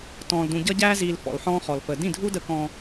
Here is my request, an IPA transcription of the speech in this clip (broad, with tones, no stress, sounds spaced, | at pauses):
t ɔ̃ː˨ l d ũ˨ ɟ ʌ˦ ɟ æː˦ z iː˨ l f ɔ̰˨ l ħ ɔ̃ː˦ χ ɔ˨ l f əː˨ d ĩ˦˨ dʱ u˦ d ə˦ k ɔ̃ː˦